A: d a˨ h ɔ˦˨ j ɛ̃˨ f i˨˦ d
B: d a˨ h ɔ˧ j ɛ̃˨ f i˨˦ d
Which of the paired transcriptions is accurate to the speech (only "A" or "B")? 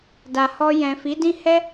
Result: B